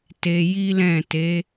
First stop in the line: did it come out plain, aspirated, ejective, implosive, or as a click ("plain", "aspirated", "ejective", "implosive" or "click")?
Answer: plain